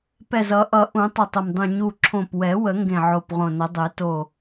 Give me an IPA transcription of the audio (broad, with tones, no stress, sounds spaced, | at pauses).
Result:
p ɛ˧˩ z ʌ˨˩˦ ʔ ʌ˨˩˦ ʔ ũ˨˩˦ tˤ o˧˩ tˤ ə˧˩ m dˤ ũ˧˩ ɲ u˧˩ ǁʰ õ˧˩ p w ɛ˨˩˦ w ə˨˩˦ ŋ ɡ ẽ˧˩ ʕ o˧˩ p ʁ õ˧˩ n ə˨˩˦ dˤ e˨˩˦ t o˧˩